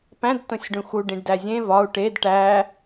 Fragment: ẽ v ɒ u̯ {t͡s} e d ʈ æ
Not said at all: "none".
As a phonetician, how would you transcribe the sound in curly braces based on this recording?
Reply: ʈ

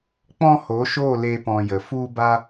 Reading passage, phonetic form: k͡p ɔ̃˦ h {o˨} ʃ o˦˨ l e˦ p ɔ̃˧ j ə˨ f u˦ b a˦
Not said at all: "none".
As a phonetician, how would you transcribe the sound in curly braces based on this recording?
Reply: o˨˦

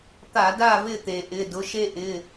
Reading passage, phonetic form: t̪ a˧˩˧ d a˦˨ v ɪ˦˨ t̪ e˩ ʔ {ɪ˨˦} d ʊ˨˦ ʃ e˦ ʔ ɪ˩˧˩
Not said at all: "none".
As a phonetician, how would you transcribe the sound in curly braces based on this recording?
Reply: ɪ˩˧˩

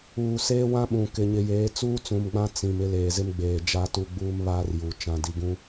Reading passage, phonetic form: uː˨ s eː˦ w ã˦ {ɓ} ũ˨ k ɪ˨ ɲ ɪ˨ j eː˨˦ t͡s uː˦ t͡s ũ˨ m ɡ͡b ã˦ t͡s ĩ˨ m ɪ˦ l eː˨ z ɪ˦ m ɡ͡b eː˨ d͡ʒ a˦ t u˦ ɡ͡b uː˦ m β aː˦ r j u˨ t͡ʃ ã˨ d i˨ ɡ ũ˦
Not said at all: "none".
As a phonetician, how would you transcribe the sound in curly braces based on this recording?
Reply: ɓ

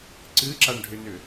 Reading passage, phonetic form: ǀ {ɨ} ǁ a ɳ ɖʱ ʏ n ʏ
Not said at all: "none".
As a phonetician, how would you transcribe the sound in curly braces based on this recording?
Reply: ɨ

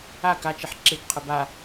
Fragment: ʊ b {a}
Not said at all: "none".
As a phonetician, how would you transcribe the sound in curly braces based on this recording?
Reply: a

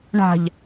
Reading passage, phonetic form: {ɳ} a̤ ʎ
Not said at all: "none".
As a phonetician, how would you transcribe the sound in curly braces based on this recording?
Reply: ɳ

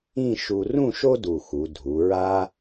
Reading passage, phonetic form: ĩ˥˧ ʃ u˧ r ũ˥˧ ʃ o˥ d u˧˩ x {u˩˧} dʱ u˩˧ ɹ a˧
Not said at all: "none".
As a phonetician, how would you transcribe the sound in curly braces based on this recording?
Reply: u˩˧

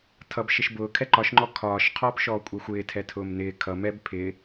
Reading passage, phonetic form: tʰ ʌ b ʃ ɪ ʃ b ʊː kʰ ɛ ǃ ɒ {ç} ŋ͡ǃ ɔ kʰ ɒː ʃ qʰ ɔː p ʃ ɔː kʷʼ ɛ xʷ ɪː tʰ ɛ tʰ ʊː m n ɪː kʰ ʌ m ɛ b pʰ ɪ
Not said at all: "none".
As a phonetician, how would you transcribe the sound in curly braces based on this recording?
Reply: ʃ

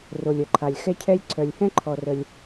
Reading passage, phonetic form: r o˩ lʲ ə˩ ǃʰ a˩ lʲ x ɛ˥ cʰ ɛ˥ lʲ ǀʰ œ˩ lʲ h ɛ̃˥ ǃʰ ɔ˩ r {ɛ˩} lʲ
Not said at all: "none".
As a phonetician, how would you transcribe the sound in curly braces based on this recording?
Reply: ə˩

